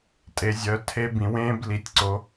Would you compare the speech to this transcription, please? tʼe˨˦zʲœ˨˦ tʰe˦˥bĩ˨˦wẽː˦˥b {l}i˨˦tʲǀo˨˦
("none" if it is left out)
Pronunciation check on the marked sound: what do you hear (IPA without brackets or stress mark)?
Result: l